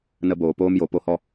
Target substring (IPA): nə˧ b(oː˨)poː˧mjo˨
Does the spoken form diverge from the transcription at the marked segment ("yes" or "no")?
no